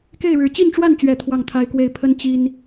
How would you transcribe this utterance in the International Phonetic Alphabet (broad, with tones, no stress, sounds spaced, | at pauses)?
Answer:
k e˥˨ ɪ̯ ɻ ɻ̩˨˩ t͡ɕ i˥˨ n ʈ͡ʂ w a˥˨ n t͡ɕ ɥ ɛ˨˩ t̪ʰ w ɑ˥˨ ŋ t̪ʰ a˦ ɪ̯ k w e˥˨ ɪ̯ pʰ ə˦ n t͡ɕ i˦ n